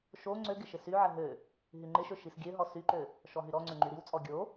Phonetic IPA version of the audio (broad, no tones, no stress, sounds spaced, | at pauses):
ʃ o ŋ͡ǀ ø ɡ ɪ ʃ ɪ s y ʕ ə ɦ ø | ɦ y ŋ͡ǃ ɪ ʃ ø ʃ i s ɡʲ ø ɦ ɔ s y ǃ ø | ʃ ɔ ɦ y ɾ ɔ ŋ͡ǀ ø ŋ͡ǃ y ɾ i w t͡sʼ ɔ ɡʲ o